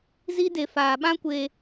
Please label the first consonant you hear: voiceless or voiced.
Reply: voiced